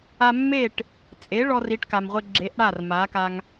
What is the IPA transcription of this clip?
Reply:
a˧ mː e˥˩ ʈ | t͡sʼ e˩˥ ɭ ɔ˧ r i˩˥ ʈ k a˩ m ʁʷ ɪ˧ ɡ͡ǁ e˩˥ ʔ ɽ a˥˩ r m a˩˥ k a˧ ŋ

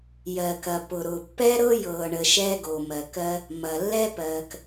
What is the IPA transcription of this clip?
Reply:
j ɜ˩ k ɐ˩ p ʊ˩ ɾ ʊː˩ pː ɛ˥ ɾ ɤ˥ j ɤː˩ ɳ ə˩ ʃ ɛː˥ ɡ o˩ m ɜ˩ k ɜ˥ | m ɐ˩ lː ɛ˥ p ɜː˩ k

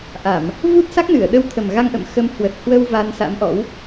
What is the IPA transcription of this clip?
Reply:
ʔ a˧˩˨ m | v u˦˥ t̚ s a˦˥ k̚ n ɨ˧˩ ə̯ ɗ ə˧ w t̪ʰ ə˨˩ m ɣ a˧ ŋ ʔ ə̰˧˨ m x ə˨˦ m h w ə˨˩ t̚ h w ə˧ w v a˧ n s a̰˧˥ m ʔ ɔ̰˧˥ w

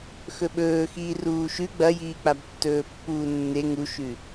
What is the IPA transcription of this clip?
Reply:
x ɵ ɓ ɵː x iː r uː ʃ ʉ ɡ͡b ɐ j iː k͡p a b tː ɵː pː uː nː e ŋ u ʃ ʉ

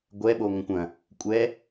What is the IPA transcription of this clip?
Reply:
ɡʷ ɛ ɓ o ŋʷ ə̃ kʷ ɐ̃ | kʷʼ ɛ

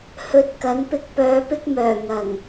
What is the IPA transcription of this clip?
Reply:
h ɵ˨ t̚ k ɐ˨˥ n p ɪ˧ k̚ p œː˨ p ɪ˧ k̚ m œː˨˩ ŋ ɐ˨˩ ŋ

